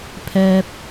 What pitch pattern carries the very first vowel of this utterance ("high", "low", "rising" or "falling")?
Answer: low